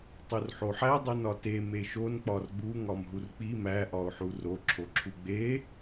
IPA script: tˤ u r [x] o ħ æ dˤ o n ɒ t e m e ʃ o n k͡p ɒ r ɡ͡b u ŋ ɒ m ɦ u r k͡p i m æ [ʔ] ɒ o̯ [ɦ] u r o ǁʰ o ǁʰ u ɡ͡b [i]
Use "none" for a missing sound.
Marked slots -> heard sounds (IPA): ħ, ʔ, ħ, e

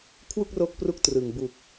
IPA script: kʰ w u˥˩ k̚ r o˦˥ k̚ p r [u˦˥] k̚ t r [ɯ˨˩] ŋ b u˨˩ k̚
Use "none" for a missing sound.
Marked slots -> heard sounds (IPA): u˦˥, ɯ˨˩

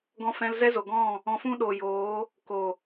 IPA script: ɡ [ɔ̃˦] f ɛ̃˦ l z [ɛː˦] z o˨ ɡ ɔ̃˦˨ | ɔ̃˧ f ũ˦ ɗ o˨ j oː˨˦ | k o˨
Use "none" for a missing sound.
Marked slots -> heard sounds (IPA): ɔ̃˦, ɛ˦

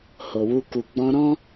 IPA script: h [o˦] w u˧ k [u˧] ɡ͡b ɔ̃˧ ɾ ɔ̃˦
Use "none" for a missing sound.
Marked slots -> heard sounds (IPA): o˨, u˨

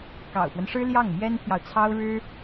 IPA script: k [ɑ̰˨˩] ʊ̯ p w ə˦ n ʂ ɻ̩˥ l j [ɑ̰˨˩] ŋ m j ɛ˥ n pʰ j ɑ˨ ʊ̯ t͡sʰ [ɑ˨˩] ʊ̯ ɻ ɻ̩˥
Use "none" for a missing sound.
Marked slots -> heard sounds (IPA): ɑ̰˨˩, ɑ˥˩, ɑ˥

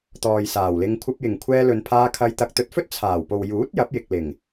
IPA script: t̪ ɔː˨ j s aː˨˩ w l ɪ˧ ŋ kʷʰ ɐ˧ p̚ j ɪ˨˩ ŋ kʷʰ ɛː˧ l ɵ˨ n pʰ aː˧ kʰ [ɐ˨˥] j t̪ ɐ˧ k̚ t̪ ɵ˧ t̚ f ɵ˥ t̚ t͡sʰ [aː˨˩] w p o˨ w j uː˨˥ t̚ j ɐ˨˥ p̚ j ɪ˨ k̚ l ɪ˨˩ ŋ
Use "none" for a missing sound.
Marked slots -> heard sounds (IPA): ɐ˧, aː˨˩

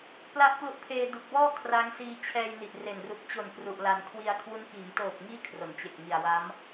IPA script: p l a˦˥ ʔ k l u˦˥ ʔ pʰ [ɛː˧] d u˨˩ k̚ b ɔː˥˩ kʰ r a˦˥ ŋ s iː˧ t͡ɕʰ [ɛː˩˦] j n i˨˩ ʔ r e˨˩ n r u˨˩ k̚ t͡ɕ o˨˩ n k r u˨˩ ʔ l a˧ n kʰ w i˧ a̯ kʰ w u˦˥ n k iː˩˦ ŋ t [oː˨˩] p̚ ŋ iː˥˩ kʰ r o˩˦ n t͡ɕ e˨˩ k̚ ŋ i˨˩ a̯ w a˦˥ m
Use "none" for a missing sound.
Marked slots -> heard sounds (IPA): eː˧, ɛː˧, oː˨˩

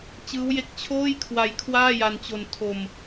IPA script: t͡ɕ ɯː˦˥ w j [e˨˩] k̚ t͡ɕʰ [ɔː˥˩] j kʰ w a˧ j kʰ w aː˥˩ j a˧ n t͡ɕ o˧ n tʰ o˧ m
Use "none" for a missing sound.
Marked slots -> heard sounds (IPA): e˦˥, oː˥˩

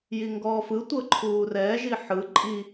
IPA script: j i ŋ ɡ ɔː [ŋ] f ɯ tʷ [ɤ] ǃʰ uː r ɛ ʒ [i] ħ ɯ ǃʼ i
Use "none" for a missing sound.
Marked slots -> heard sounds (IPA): none, ɤ, i

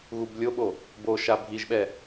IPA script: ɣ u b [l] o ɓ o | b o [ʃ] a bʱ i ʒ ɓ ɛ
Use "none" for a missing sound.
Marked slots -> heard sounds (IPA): lʲ, ʃ

